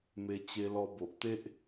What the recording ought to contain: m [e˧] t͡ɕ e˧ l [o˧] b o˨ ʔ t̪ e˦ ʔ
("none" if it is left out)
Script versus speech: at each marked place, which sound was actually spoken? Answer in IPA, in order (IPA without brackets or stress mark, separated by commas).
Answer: e˧, ɔ˧